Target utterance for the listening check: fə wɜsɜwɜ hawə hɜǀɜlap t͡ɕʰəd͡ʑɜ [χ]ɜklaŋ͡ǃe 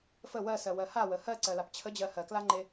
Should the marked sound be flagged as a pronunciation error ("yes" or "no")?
yes